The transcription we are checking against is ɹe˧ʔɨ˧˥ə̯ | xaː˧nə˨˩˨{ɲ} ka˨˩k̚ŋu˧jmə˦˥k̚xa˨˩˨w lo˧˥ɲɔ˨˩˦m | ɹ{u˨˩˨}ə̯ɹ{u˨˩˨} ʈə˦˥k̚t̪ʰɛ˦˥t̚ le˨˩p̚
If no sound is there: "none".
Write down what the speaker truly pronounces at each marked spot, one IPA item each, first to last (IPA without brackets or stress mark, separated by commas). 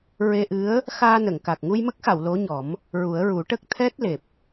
ŋ, u˨˩˦, u˨˩˦